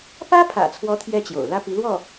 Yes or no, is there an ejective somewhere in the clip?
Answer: no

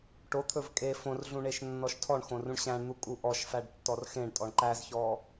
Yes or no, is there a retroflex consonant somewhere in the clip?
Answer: yes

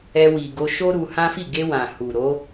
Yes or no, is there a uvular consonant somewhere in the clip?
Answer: no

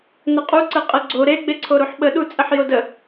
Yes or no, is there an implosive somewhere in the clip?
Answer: yes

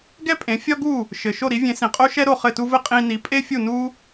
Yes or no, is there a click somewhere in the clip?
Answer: no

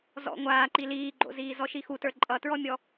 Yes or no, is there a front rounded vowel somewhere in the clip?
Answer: no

